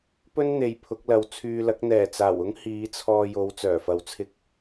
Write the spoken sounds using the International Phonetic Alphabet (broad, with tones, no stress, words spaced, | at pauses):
pɵ˥n n̪e˨jpʰʊ˨˥k̚lɐ˨˧w t͡sʰyː˧lɐ˨˥k̚ n̪ɛː˨˩t͡saː˨˩wʊ˥ŋ hiː˨˧t͡sʰɔː˧jo˨˧w t͡sœː˨˩fɐ˧wt͡sʰɪ˥k̚